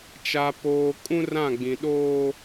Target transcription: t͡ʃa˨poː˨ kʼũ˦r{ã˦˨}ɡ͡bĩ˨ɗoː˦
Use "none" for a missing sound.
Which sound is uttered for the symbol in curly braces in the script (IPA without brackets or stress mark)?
ã˦˨